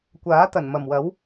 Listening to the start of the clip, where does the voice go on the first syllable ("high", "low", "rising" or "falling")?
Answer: rising